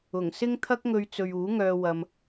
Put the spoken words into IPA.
ʊ˨˩ŋsɪ˥ŋ t̪ʰɐ˥k̚ŋɵ˧ɥt͡sɵ˨ɥ uː˨˥ŋœː˧ wɐ˧m

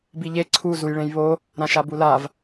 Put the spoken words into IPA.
biʎe ǀʰu zujɭẽjβo | ɾãʃabulav

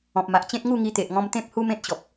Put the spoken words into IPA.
ɔ̃˨p̚ma˨ʔt͡ɕẽ˦t̚ ŋu˥˧ŋi˧t̪e˨ʔŋɔ̃˧m t̪ẽ˦p̚hu˦mẽ˦t̚ɕɔ˨p̚

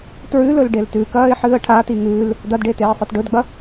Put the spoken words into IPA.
tɹʉlɵl ɖeltʉkɐːɪ̯ ħɨːə̯ʈʰati ŋʉːl | dɐdɖe teːə̯sˤetɖɵdɡ͡bɐ

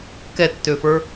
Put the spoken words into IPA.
kɛtːøfə˞

